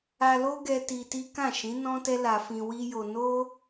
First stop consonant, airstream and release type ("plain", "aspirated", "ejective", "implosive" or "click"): plain